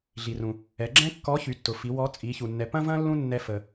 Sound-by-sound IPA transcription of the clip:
ɮ i˩ r ũ˩ | ɛ˩˧ ɡ͡ǁ ɛ̃˥ kː ɔ˧˥ ç y˩˧ tː ʊ˩ f i˩˧ w ɔ˧˥ t͡sʼ i˩˧ ç u˩ nː ɛ˩˧ p ɐ̃˥ v ɐ̃˥ lː ũ˥ nː ɛ˧ f ə˩

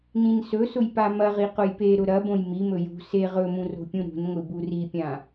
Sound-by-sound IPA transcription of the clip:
n ĩ n s ɵ s ʊ j p a m ɐ ʁ i q ʊ j p e ɾ ʊ ɾ ɐ b õ j m i m ɵ j ṳ s e ʁ ɵ m ũ r o̤ pʲ ũ ɾ ṳ n ŋʷ i b u r i pʲ ã

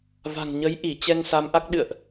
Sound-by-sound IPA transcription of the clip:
v a̤˨˩ ŋ ɲ ə˨˦ j ʔ i˧˩ t͡ɕ ɛ˧ ŋ s a˨˦ m ʔ a˦˥ k̚ ɗ ɨ̰˧˨ ə̯ ʔ

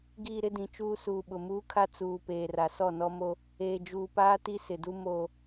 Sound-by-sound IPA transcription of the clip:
ɡ iː˨ ɾ ɪ˦ d ĩ˨ t͡ʃ uː˦ s uː˨ ɓ ʊ˨ m uː˦ kʰ a˦ t͡s uː˨ p eː˨ r a˨ s ɔ˦˨ n ɔ˦ m o˦ | eː˨ d͡ʒ uː˨ p aː˦ t i˦ s ɪ˨ d u˦ m o˦

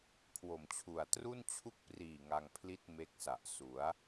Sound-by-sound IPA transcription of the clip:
kʰ w o˨˩ m t͡ɕʰ u˨˩ a̯ t r u˥˩ n t͡ɕʰ u˥˩ k̚ p r iː˨˩ ŋ a˧ ŋ pʰ l i˥˩ t̚ m e˦˥ k̚ s a˨˩ ʔ s u˩˦ a̯

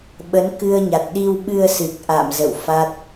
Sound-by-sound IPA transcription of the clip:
ɓ ə˨˦ n k ɨ˧ ə̯ ɲ a˨˩ t̚ ɗ i˧ w ɓ ɨ˧ ə̯ s ɨ˨˩ k̚ ʔ a̰˧˨ m z ə̰˧˨ w f a˦˥ t̚

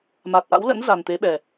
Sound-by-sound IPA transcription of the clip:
m a˨˩ t̚ ʔ a̰˧˥ w l ə̰˧˥ n z a˨˩ n t̪ e˨˦ ɓ ɛ˨˩

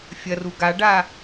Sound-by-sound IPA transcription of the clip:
fʲ ɐ r u ɡ a ɖ a

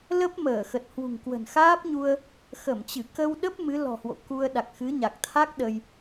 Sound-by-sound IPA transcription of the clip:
l ə˦˥ p̚ m əː˧˩ x ə˨˩ t̚ h w ṳ˨˩ ŋ k w ə̤˨˩ n x aː˦˥ p̚ ɲ u˧ ə̯ | x ə˧˩ m t͡ɕ ɨ˧˩ k ə˧ w ɗ ə˦˥ p̚ m ɨ˨˦ l ɔ̤˨˩ h w o̰˧˨ k u˧ ə̯ ɗ a˨˩ k̚ x ɨ˨˦ ɲ a˨˩ k̚ t̪ʰ a˦˥ k̚ ɗ ə˧ j

